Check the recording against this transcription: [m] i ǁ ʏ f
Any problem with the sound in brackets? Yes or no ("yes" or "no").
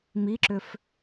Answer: no